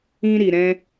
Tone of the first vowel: high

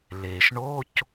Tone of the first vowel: low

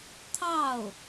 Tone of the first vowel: falling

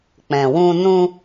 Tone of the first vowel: low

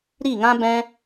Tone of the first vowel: falling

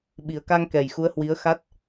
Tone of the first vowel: low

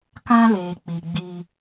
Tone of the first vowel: high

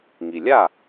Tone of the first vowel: low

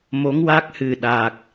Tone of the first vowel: rising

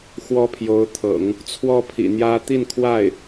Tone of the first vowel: high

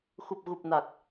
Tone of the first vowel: low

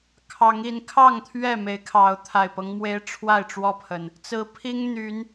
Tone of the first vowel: rising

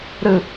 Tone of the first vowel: low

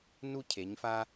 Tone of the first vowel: high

